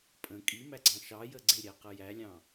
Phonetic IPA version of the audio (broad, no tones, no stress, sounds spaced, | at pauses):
pʼ ə̃ kʼ i m æ ɡ͡ǀ ɑ̃ ʃ ɑ j ə ɡ͡ǀ ɪ ɾʲ æ q ə j æ lʲ ɑ̃